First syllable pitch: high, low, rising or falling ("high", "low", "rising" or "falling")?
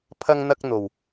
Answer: high